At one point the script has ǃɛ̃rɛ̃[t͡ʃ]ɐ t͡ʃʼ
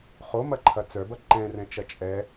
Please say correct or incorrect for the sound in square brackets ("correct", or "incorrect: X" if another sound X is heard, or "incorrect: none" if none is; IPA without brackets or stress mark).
correct